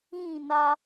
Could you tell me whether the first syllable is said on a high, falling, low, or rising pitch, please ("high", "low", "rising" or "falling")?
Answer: falling